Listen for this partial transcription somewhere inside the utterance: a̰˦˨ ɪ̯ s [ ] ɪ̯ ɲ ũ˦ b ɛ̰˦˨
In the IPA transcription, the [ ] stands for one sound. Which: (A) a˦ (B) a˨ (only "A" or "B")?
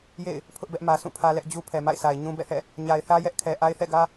B